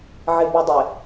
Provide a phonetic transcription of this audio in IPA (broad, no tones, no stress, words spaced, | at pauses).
ʕɪbudˤɪ